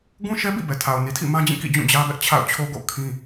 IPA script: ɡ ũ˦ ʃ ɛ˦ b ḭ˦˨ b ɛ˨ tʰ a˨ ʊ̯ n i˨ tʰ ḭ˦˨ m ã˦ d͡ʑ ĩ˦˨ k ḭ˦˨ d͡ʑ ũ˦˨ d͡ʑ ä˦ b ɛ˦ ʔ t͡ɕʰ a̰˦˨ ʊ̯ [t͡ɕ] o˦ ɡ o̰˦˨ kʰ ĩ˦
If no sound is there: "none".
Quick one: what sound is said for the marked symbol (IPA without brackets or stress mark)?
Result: t͡ɕʰ